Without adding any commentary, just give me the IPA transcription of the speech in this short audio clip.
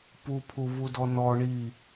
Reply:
p u pʰ u v u d ɔ n ɔ ɳ i

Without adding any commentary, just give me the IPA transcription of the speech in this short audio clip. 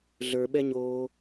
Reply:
ɮ ə˞ ɓ ɛ ɲ oː

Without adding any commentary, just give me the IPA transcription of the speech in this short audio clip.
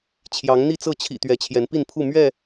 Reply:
t͡ɕʰ j ɑ˨˦ ŋ n̪ i˥˨ t͡s ɤ˥˨ t͡ɕʰ ḭ˨˩ t̪ ɥ ɛ˨˦ t͡ɕʰ j ɛ˨˦ n p i˥˨ n pʰ u˥˨ m ɥ ɛ˥˨

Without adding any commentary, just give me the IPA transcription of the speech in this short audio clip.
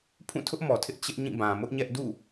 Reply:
pʰ ũ˦˨ tʰ ʊ˦ ʔ m ɔ˨ tʰ ɪ˦ ʔ t͡ɕ ɪ˦ ʔ ɲ ĩ˦˨ b ã˨ m ʊ˦ ʔ ɲ ɛ˦ ʔ d ṵ˦˨

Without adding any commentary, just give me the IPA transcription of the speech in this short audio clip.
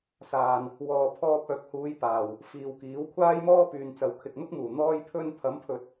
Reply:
s aː˨ n | w ɔː˨ pʰ ɔː˧ p̚ œː˨ k̚ h uː˨˧ j p aː˨˩ w | f iː˨ w k iː˨˥ w kʷʰ aː˥ j m ɔː˥ p yː˨ n t͡s ɐ˨ w kʰ ɪ˨ k̚ n̪ ʊ˥ k̚ m uː˨˩ n̪ ɔː˧ j pʰ ɵ˧ n pʰ ɐ˨˥ m pʰ ɵ˨˥ t̚

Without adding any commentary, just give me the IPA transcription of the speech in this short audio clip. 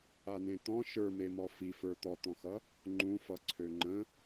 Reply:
a n ẽ t̪ ɔ̃ ʃ ə˞ m e m ɔ f i f ə˞ t̪ ɔ t̪ ɔ̃ x ʌ | ŋ͡ǃ ũ f ʌ ǀʰ ø ŋ͡ǃ ə̃

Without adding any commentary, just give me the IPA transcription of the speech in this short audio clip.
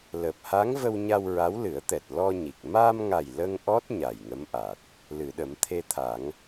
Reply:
l əː˨˩ p̚ h a˧˥ ŋ v ə˧ w ɲ a˧ w ɹ a˧˥ w l ɨ˨˩˦ ə̯ t̪ ɛ˨˩ t̚ l ɔ˧ ɲ i˨˩ k̚ m aː˧ m ŋ a˨˩ j l ə˧ ŋ ʔ ɔ˦˥ t̚ ɲ a˨˩ j ŋ ə˧˥ m ʔ a˨˩ t̚ | l ɨ˨˩˨ ɗ ə˨˩˦ m t̪ʰ e˧ t̪ʰ a˨˩˦ ŋ

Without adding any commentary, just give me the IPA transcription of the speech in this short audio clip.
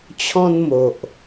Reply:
t͡ɕʰ ɔ̃˦ n m o˨ ʔ

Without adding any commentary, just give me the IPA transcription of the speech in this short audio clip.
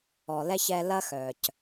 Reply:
ɔ˨ l ɛ˦ ç ɛ˦ l ɐ˦ x œ˨ c

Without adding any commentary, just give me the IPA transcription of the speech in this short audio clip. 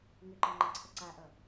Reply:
ŋ ʏ ǃ ʌ ŋ͡ǃ ʌ ǀʰ ʌ ǀ a ʔ ʌ

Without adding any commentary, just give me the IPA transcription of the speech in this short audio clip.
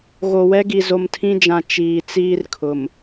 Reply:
ɣ o˨ w ɛ˦ ɡ i˨ z o˨ m tʰ ĩ˦ d͡ʒ ã˨ t͡ʃ iː˨ t͡s iː˦ r kʰ ʊ˨ m

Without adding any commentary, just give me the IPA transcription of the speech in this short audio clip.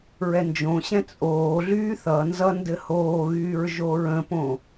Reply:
ɹ ɛ n d͡ʒ õ ɕ ɛ̃ t͡sʼ oː ɮ yː θ ʌ n z ʌ n d ɘ h oː ɣ yː ɹ ʒ o ɹ ə̃ p õ

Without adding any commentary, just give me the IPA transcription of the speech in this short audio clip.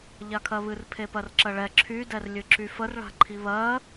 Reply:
ʎ a kʰ ɜ β ɨ r pʰ e p ɜ r ǁ ɜ ɭ ɛ ǁʰ y d ɛ r lʲ ɨ ǁ y f ə r ɭ a̤ ǃʰ i β ɜ

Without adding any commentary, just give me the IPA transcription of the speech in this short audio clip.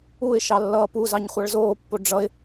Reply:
u ɪ̯ ʃ ɑ lː ʌː p u z ɑ ɲ χʷ ɑ ɭ z oː pː o ɖ͡ʐ ʌ ɪ̯

